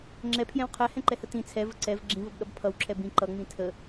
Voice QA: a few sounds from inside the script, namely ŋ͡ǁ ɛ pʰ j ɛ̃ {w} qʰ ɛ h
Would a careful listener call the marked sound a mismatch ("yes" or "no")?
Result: no